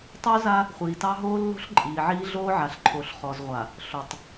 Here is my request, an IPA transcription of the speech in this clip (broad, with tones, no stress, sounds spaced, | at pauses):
tˤ œ˦ z a˦ | χʷ iː˨ t ɑ˦ ɦ oː˦ lː o̤˦ ɬ ǃʼ iː˨ ʕ iː˦ ɮ oː˦ ʕ a˨ ɬ ǃʰ o˨ ɬ χ ɔ˨ z ʁʷ a˨ | ɬ o˨ tˤ